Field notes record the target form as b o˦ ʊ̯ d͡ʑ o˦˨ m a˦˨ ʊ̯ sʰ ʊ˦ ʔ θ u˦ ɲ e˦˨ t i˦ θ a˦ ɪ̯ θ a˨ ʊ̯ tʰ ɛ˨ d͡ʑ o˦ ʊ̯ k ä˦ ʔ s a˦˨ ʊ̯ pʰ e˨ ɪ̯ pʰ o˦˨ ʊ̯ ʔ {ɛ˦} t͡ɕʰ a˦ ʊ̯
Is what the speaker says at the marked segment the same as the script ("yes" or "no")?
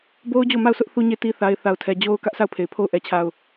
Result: yes